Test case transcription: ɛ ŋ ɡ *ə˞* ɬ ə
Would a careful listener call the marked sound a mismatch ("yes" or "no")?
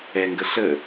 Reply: yes